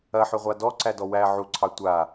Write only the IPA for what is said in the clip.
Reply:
ɐħʏʁʷa dɔǀædɔ wæ ʕuǀʰɑ tʷa

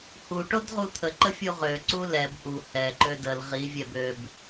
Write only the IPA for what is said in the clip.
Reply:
hu ʈodʁut̪ʰə ǃəfʲuʁø ǀulɛb ʔu hɛǃø dəl ʁivʲɛb øb

